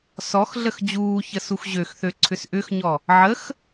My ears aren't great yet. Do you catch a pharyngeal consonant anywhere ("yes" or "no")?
yes